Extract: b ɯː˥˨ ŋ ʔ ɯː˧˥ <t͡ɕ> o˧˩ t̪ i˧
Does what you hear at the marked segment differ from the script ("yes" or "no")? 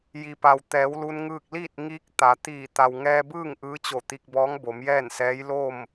no